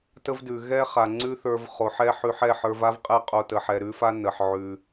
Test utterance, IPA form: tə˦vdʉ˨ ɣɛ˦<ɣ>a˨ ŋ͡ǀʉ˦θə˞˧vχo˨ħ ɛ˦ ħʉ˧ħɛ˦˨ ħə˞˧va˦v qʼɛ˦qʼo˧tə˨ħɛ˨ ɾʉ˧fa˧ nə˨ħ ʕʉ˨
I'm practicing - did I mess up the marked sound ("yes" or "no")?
yes